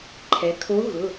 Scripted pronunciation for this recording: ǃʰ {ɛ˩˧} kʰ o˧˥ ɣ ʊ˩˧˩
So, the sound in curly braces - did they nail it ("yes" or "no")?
yes